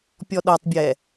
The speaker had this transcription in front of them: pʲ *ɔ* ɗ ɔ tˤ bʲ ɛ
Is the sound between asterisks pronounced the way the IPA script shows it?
yes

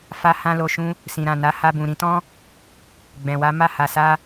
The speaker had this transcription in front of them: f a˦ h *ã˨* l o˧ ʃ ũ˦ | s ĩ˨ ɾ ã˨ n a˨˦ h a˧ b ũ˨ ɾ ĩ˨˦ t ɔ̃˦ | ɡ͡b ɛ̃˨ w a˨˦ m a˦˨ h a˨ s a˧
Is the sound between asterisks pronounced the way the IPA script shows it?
no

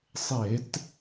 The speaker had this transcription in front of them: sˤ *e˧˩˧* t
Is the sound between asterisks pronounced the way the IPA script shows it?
yes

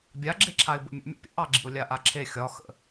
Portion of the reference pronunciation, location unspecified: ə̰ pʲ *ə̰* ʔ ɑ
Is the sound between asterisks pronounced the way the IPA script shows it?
yes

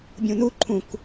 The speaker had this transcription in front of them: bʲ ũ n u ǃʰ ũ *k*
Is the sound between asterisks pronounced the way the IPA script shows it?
yes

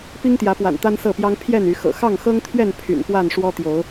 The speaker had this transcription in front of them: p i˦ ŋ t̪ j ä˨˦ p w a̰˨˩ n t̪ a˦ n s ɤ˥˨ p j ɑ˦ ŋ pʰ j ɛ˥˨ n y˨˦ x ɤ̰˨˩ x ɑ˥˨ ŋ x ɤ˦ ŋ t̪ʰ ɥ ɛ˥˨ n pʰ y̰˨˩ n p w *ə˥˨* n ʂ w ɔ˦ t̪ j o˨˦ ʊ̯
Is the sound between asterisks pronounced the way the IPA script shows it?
no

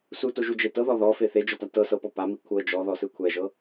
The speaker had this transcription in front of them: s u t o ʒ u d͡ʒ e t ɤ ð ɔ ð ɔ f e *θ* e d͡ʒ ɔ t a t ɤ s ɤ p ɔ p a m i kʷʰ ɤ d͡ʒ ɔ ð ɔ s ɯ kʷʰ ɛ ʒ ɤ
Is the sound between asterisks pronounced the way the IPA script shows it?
yes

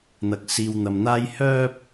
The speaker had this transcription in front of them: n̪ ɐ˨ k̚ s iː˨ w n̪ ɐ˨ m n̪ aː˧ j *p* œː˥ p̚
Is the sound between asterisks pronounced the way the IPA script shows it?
no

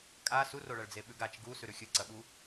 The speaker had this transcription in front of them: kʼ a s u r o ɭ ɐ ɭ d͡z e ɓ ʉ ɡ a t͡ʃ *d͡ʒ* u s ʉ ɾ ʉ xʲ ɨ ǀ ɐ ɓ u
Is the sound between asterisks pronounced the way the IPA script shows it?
no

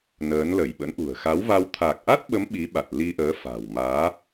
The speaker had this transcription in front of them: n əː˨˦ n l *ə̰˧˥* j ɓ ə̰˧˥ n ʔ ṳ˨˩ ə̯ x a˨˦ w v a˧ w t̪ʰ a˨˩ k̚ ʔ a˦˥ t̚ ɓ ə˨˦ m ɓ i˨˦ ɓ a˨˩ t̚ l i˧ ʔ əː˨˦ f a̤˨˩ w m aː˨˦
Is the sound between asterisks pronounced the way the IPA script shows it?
no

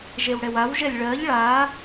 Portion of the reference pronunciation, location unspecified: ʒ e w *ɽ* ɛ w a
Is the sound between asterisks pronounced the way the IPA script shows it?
yes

